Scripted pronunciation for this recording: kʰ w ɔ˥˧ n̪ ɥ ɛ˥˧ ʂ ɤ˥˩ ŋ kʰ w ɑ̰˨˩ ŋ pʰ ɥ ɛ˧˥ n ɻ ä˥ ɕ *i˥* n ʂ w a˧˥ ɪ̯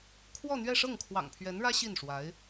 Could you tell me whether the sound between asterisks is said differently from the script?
yes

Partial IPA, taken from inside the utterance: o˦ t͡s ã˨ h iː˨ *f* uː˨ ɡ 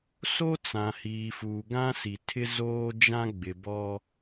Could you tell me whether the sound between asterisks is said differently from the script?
no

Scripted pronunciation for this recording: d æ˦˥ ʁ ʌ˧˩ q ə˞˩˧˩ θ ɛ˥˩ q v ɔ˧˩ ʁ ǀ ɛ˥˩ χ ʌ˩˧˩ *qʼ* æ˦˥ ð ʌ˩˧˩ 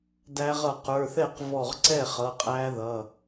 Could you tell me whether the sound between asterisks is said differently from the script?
no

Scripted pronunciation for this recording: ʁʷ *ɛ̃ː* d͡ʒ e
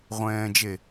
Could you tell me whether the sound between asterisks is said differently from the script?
no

